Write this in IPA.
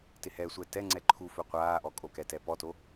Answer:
t ɪ h ɛ sʷ ɛ t ɛ ŋ͡ǀ ɛ ǃʰ u f ɵ qʷ aː ʔ ɔ kʼ o k ɛ t ɛ p ɔ t o

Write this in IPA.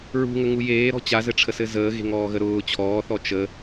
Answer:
ɹ ṳ ŋ ə ŋ u j eː ɾ ɔ̤ t͡ɕ a z ɘ ʈ͡ʂʰ ə s ɘ z əː ɣ e̤ ŋ ɔː ɣ ə ɾ ʊː t͡ɕʰ ɔː θ ɔ t͡ʃ ə

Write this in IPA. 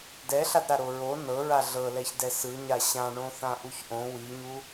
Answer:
d ɛ ɬ a d ɾ a ɾ o ɹ o n ɤ ɹ a ɮ ɤ l ɛ ç d ɛ s ɯ ɲ a ɕ ã ɳ õ θ ã ʔ u ç ʔ õ w i ɲ u

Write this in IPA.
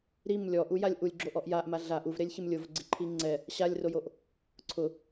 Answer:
ɾ i m lʲ ɔ ʔ u j a lʲ ʔ u lʲ ɡ͡ǁ o ʔ ɔ ʔ j a ʔ m a ɮ a ʔ u v ɾ e lʲ ç ɪ m lʲ ʊ v ɡ͡ǀ ɪ ǃʰ i ŋ͡ǀ ɛ | ɕ a lʲ r o j o ʔ | ǀʰ ʊ

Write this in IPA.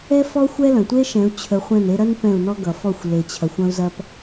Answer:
ɛ˦ f ɔ˦ xʷ ɛ˦ l ɐ̃˨ tʷ e˦ ʃ ɛ̃˨˦ u̯ t͡ɕʰ ə˧ χʷ ɛ̃˦˨ n e˧ ɾ ɐ˦ n p ɛ̃˦˨ u̯ n ɔ˦ ɡ ʌ˨ f ɔ˦˨ xʷ l e˧ t͡ɕʰ ɐ˧ xʷ ɐ̃˦ u̯ z ɐ˦ p

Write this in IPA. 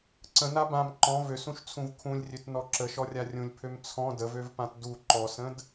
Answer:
ǀ ə̃ n a b ã m ǃ ɔ̃ v ø s ũ ʃ t͡sʰ ũ v kʰ ũ lʲ rʲ ø t n ɔ ǁ ə ʃ ɔ rʲ a rʲ ũ lʲ pʰ ø m t͡sʰ ɔ̃ d ə v ø v p ã t d u ǃ ɔ s ə̃ d

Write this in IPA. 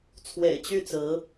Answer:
t͡sʰ w ḛ˨˩ ɪ̯ t͡ɕ y˥˩ t͡s ɹ̩˧˥

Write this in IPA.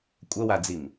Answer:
kʷʼ ɐ w a d͡z i m

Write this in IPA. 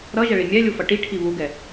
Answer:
ɾ ʌ ʒ ɛ ɭ i mʲ ɛ lʲ u f ʌ ʈ i ʈʰ i β u ɡ ɛ

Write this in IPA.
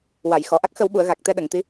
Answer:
w a˨˩˨ j x ɔ˨˩˨ ʔ a˦˥ k̚ x ə˨˩˦ w ɓ u˨˩˨ ə̯ ɣ a˨˩ k̚ t̪ ɛ˧ ɗ ə˨˩˨ ŋ t̪ i˧˥

